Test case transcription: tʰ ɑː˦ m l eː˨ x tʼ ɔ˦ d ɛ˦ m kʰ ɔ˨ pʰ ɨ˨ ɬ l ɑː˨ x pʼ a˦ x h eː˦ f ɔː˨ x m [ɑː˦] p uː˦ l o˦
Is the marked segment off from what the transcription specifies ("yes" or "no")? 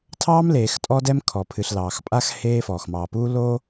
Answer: yes